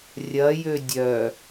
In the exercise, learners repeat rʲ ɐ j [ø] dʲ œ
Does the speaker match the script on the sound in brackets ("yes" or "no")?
yes